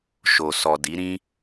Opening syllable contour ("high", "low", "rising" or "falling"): low